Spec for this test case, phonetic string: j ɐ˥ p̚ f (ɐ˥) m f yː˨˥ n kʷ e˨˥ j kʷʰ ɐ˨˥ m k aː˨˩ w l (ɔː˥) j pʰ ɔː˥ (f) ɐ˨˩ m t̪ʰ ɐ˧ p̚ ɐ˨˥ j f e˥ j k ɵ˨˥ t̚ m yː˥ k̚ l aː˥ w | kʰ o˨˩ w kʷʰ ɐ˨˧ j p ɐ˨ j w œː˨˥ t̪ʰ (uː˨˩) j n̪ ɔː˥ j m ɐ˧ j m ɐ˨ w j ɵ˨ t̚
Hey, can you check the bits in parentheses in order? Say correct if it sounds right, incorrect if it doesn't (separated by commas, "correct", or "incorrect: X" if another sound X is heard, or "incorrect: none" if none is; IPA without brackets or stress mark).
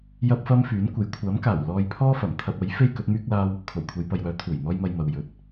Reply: correct, incorrect: ɔː˧, correct, correct